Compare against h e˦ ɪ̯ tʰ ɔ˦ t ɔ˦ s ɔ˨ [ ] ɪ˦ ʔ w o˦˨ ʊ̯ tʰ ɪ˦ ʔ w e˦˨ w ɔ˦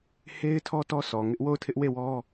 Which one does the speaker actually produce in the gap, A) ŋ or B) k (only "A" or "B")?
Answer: A